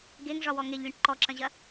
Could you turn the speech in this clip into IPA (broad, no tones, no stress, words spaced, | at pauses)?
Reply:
ɡeŋʐɒwɔ ŋeʎlʲɐ̃ʈ ǃɔǁɐ̃ʑɐ